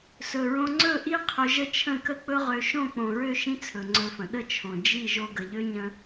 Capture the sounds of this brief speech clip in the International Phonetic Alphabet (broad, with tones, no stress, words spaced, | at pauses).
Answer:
sɵ˨ɹõ˧ ŋ͡ǀɵ˦˨ʔi˦ qʰɵ˧ʒə˦ t͡ʃʰə̃˦˨kə˦k͡pɵ˦ʁø˧ ʃõ˦˨k͡põ˨ɹø˦˨ ʃĩ˦t͡sʰɵ˨ŋ͡ǀɵ˧fə̃˨ ɗə˦t͡ʃʰõ˨ d͡ʒi˦˨ ʒo˦ ɡə˨ʎø˦ ɲə̃˦